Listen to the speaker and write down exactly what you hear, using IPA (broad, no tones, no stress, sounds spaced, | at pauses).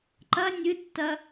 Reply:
ǃ ɐ nʲ ɨ tː ɐ